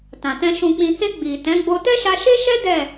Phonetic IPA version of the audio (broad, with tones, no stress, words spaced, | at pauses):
tã˨tɛ̃˧ ʃũ˨k͡pĩ˨he˧ ɡ͡bi˨ tɛ̃˨˦ɡ͡bo˧ tɛ˦ʃa˧ʃe˦ʃɛ˦ dɛ˦˨